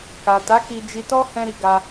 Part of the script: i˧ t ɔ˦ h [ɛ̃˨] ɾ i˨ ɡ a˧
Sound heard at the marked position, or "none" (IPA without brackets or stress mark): ɛ̃˧